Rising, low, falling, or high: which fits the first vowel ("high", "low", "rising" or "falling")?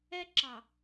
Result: high